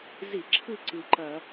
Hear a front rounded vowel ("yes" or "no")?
no